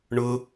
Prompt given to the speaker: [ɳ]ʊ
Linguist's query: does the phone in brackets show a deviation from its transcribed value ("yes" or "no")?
no